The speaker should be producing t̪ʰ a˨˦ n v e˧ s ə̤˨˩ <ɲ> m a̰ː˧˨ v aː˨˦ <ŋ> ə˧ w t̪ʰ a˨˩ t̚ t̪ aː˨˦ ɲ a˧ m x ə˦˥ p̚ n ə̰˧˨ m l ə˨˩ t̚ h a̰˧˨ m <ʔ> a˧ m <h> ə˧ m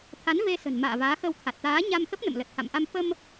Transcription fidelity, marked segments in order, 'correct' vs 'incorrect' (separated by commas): incorrect, incorrect, correct, incorrect